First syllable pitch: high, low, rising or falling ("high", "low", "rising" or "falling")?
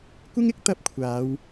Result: high